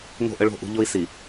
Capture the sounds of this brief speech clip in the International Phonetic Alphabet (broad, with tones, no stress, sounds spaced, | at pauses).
ŋ o̤˦˨ ʔ ə˦ ɭ o̤˦˨ ʔ ṳ˦ ʎ o˦ i̯ s i˨